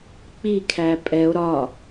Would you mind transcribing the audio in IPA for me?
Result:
k͡p i kʰ æ pʼ ɛ o̯ ɾ ɒ

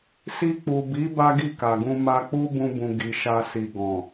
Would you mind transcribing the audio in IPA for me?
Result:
s i˧ k͡p u˨ b i˨˦ b a˦ ɡ i˦˨ k a˨ ɡ ũ˧ m a˧ k͡p u˦ b ũ˧ b ũ˨ ɡ i˨ ʃ a˧ s i˨ ɡ ɔ̃˨

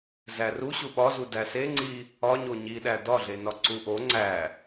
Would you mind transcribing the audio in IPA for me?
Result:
z æ r u ɕ u ɓ ɒ z u d æ s e ŋ͡ǀ i | ɒ ɲ o ɲ i ɗ æ d ɒ ɮ e n ɒ ǀ u ʔ o ŋ͡ǀ æ

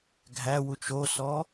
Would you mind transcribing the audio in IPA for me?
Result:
ɡʱ æ w u t͡ʃ o s ɔ

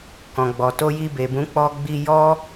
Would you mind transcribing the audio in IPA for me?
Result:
k ɔ̃˨ ɡ͡b ɔ˨ t o˧ j i˧ b e˨ b ũ˨˦ k͡p ɔ˧ ɡ͡b i˧ j ɔ˦

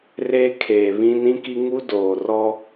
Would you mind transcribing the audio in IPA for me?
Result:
r eː˦ kʰ eː˨ β ĩ˦ n ĩ˦ k i˦ ŋ u˦ d oː˨ r ɔ˦

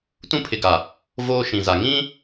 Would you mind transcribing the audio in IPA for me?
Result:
t ũ˦ pʰ ɪ˨ ɡ a˨ | v oː˦ ʃ ĩ˨ z a˨ ŋ ĩ˦

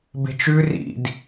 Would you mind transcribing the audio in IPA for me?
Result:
b e̤ t͡ʃ ʉ r ḭ d

